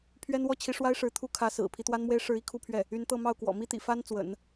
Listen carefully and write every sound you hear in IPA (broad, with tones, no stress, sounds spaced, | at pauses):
pʰ ɥ ɛ˥ n w ɔ˥ t͡ɕʰ i˧˥ ʂ w a˥ ɪ̯ ʂ ɻ̩˧˥ t̪ʰ u˥ kʰ ä˧˥ s ɹ̩˨˩ pʰ i˧˥ t̪ w a˥ n m w e˥ ɪ̯ ʂ ɻ̩˧˥ i˥˧ kʰ u˥˧ pʰ ɥ ɛ˥˩ | y˧˥ n t̪ ɤ˥˧ m ɑ˥˩ ʊ̯ k w ɔ̰˨˩ m i˥ t̪ ḭ˨˩ f a˥ n t͡s w ə̰˨˩˦ n